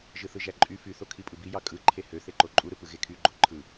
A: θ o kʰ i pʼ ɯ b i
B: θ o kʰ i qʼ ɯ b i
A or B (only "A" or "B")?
A